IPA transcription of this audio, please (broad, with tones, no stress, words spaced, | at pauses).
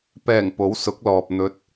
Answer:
pɛː˨˩ŋ po˨˥wsʊ˨˥k̚lɔː˨p̚ n̪ɵ˨˥t̚